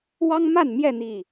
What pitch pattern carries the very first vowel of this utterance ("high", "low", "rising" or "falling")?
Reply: high